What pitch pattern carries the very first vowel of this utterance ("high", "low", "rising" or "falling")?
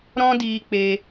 high